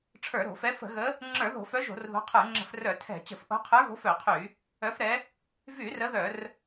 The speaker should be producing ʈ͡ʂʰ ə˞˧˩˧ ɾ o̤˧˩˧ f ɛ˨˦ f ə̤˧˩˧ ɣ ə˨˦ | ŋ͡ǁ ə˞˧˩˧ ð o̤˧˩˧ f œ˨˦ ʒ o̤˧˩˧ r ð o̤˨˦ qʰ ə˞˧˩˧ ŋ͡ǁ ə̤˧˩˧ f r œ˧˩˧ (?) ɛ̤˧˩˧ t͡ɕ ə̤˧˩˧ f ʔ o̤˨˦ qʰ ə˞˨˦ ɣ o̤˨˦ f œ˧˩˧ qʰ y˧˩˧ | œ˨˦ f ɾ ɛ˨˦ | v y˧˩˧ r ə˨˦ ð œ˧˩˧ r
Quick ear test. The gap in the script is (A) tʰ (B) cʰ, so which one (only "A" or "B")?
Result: A